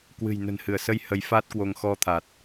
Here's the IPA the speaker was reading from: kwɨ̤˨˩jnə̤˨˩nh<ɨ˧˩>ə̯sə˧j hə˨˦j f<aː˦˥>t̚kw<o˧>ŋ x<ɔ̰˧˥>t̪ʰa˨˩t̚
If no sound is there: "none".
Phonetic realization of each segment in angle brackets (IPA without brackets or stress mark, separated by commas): ɨ˧˩, aː˦˥, o˧, ɔ˧